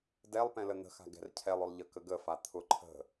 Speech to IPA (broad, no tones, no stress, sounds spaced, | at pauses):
d ɛ lˠ p ɛ̃ l ə n̪ ə̤ x a̤ ɡ ɛ̤ r cʰ ɛ lˠ ʊ lˠ ʎ ə k ə ɡ ə f a t̪ʰ ʊ ǃʰ ə̤